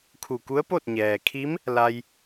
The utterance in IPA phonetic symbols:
kʰu˧˩ku˧˥ə̯po˥˨t̚ɲɛː˩ kʰi˧˥m | la˧j

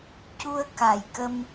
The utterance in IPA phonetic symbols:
cu˧ə̯ ka˨˩jkə˧m

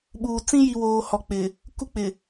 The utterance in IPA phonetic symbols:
ɓuː˨ t͡sĩ˦ji˨ woː˨ hɔ˨k͡pɪ˨ | ku˦k͡pɪ˨

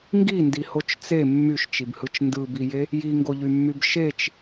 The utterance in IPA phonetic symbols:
ŋɡindihot͡ʃ t͡se mːyʃt͡ʃibhɯt͡ʃ ndɯbije | jiŋɡoʎymːyb ʃet͡ʃ

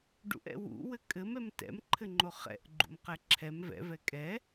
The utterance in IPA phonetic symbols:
ɖṵʔɛ̰ wṵwɘ kʼɘmɛm tɛ̰mǃʰɘŋ͡ǃo χɛ̰ʔɡ͡ǃṵmqɛ ǁʰɛm vɛ̰vɛ kʼɛ

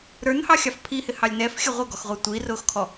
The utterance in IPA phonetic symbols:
ɾə˞nhɑxʲɑf pʰihɪhɑlʲ nɛfxʲə ʁʷəɡɔxʁʷæ tʷirʊːxkʰɔ

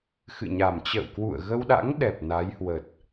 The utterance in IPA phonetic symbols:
xɨ̰˧˨ɲa˨˩mt͡ɕə̰ː˧˨wkwṵ˧˨ə̯ ɣə˧wɗa̰˧˥ŋɗɛ˨˩p̚ na˨˦jhwə˨˩t̚

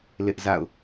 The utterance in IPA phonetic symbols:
lɪ˦ʔza̰˦˨ʊ̯

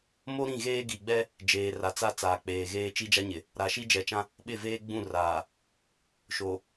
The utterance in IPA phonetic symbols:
mo˦ ɾĩ˦˨ɣeː˦ ɡi˨ɡ͡bɛ˦ | d͡ʒeː˨ra˨t͡sa˦ t͡saː˨k͡peː˨ɣeː˦ t͡ʃi˦d͡ʒa˦ɲɪ˨ | ɾa˨ʃi˦d͡ʒɛ˨t͡ʃã˦ | ɓɪ˦˨veː˦ ɡ͡bũ˦˨raː˨ | ʃo˨

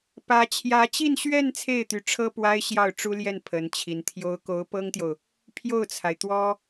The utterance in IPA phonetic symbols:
pä˧˥t͡ɕʰjä˧˥t͡ɕi˥˧nɕɥɛ˥˧n t͡sʰe˥˩ɪ̯t̪y˧˥ʈ͡ʂʰɤ˥ pwa˥ɪ̯ɕjɑ˥˩ʊ̯ ʈ͡ʂu˥ljɛ˥˩n pʰə˧˥nt͡ɕʰi˧˥nt̪ʰjo˥ʊ̯ ko˧˥ʊ̯pɤ˥ŋt̪jo˨ʊ̯ | pʰjo˥˩ʊ̯t͡sʰa˩ɪ̯ t̪wɔ˥

